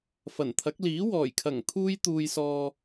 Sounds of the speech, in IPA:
fɐ˨˩nt̪ʰɐ˨˥k̚ liː˨˥wɔː˨˩jkʰɐ˨˩ŋ t̪ʰuː˧jt̪uː˨jsɔː˨

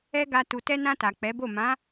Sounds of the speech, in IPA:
ɛ˦ɡa˧ tu˨tɛ˧nã˧ ta˨k͡pɛ˨˦bo˦˨ mã˨˦

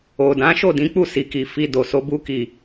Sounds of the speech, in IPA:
o˨ dã˨˦ʃo˦˨dĩ˨˦ k͡pu˦˨si˨ki˨ fi˧ do˨so˧ bu˧ki˨

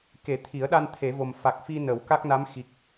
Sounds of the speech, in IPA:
ke˨˩˦t̪ʰi˨˩˦ə̯ɗa˧n t̪ʰe˨˩˦vo˨˩m fa˨˩k̚fi˧ nə˨˩˦wka˦˥k̚na˧˥m xi˨˩k̚

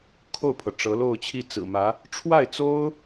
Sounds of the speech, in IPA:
kʰo˥˩ʊ̯pʰɤ˩ ʈ͡ʂɤ˧˥lo˥˧ʊ̯t͡ɕʰi˥˩ t͡sɹ̩˨˩mä˧˥ | ʈ͡ʂʰwa˥˩ɪ̯t͡so˥ʊ̯

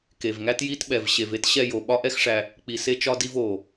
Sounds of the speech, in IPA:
ke˨vŋæ˦tji˦tɓɛ˨v ɕe˨ve˦t ɕɛ˧jo˨ ɓɒ˦ʔɛ˦xʂæ˧ | k͡pi˨se˧t͡ʃɒ˧di˧v o˨

